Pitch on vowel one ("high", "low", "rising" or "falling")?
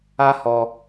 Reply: high